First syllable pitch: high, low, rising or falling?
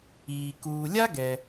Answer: low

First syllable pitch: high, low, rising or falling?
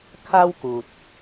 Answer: high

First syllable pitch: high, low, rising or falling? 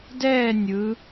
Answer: falling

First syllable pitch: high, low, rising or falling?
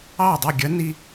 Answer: falling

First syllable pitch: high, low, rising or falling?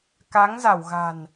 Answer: rising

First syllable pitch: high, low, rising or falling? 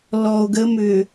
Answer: low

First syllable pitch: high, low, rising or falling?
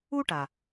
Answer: high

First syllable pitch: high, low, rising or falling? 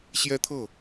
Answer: high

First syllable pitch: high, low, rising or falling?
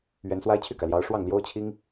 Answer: rising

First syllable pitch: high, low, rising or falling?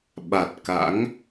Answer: low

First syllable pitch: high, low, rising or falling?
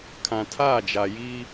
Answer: low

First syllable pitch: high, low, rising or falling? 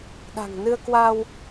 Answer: low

